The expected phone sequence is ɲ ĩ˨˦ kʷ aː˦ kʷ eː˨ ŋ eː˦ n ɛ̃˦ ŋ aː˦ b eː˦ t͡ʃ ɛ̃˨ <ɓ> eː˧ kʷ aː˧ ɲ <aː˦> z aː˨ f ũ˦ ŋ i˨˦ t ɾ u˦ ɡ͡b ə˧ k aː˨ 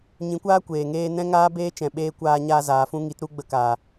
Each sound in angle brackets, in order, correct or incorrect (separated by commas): correct, correct